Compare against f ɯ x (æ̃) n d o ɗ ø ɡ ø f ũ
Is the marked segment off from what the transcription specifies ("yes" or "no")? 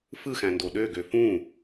no